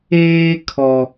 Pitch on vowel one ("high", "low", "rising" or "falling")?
high